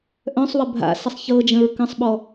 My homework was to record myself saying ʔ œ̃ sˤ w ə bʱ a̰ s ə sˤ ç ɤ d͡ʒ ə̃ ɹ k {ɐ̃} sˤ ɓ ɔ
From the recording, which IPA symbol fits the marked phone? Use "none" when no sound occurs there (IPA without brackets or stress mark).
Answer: ə̃